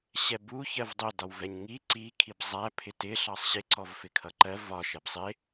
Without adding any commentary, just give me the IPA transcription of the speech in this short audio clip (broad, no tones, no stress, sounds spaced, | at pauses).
ɕ ɛ b u ç ɜ v dˤ ʊ d ɒ w v ɛ ɲ ŋ i ǀ i kʰ i b zˤ æ pʰ ɪ t ɪ ɬ ɑ sˤ ɕ ɪ ǀ ɔ v f ɪ kʰ ʌ ǃ ɜ v ɒ ʃ ɛ b sˤ ɪ